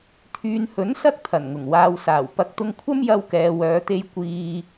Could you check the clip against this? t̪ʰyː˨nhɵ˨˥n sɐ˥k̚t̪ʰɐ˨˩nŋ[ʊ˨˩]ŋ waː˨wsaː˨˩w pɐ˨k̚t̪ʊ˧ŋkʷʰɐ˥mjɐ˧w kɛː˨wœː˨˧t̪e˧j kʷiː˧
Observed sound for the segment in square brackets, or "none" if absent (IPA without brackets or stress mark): ʊ˨˩